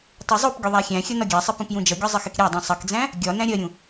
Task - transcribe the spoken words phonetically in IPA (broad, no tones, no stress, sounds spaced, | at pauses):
tˤ u zˤ u p ɡʲ ʊ ðˤ æ xʲ æ̃ xʲ ʌ n ɒ ɡʲ æ sˤ ɪ p ũ p j ũ d͡ʒ ʌ ɡʲ ɒ zˤ ɪ x ɪ k ɾʲ æ dˤ ũ sˤ ʌ k d͡z æ̃ | ɡʲ ɒ n æ̃ ɾʲ ɜ ɾʲ ũ